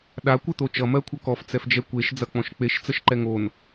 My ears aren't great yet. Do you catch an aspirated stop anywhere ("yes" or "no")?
yes